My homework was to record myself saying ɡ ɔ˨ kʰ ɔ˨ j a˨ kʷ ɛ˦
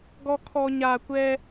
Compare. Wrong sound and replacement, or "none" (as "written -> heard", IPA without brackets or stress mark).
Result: j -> ɲ